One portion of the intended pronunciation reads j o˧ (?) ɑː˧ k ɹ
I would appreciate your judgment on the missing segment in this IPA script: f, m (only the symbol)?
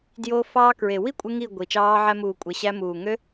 f